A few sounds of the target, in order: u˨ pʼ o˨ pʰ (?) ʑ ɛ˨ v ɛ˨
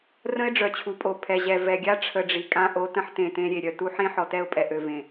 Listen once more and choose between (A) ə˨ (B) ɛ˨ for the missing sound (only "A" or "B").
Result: B